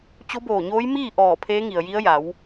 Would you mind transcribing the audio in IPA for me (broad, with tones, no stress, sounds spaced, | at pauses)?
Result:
t͡ɕ o˧˥ b oː˧˩ ɲ oː˧˥ j m iː˥˨ ʔ ɔː˧˩ pʰ eː˧˥ ŋ i˩ ə̯ j i˧˥ ə̯ j a˩˧ w